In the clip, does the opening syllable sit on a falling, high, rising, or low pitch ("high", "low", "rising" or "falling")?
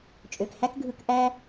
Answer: low